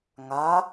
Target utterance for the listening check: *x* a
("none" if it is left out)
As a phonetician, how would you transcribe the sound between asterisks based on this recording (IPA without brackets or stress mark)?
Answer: ŋ